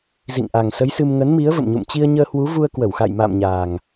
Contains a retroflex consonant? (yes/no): no